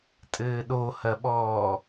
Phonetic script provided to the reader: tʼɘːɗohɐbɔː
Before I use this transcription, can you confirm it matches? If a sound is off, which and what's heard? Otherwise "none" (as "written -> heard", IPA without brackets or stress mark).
b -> ɓ